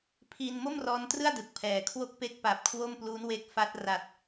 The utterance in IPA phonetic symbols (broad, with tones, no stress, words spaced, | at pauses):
pʰi˧n mo˥˩mrɔː˧ntrɯ˥˩a̯ dɯ˨˩k̚pʰɛː˨˩ kʰwo˥˩k̚ pe˥˩k̚ pa˨˩p̚ kʰwo˥˩m plu˦˥nwe˦˥k̚fa˦˥t̚ ra˨˩t̚